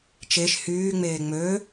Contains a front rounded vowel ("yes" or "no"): yes